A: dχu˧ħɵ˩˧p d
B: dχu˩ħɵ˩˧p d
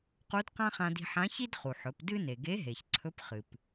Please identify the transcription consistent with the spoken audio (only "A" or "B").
B